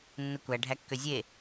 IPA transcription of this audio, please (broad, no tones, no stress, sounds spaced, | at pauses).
nː ɯ kʷ æ ɖʱ æ kː ø zʲ e